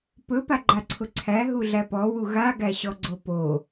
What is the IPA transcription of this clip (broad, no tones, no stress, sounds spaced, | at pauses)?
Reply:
p ɵ p a ɡ͡ǃ a ǀʰ ʊ ǀʰ æ ɦ u ɮ æ p ɔ w u ɣ a ɡ æ ɕ ɔ ɡ͡ǀ o p o